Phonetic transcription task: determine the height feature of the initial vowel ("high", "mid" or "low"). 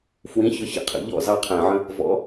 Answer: high